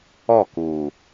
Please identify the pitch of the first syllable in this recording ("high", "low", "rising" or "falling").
falling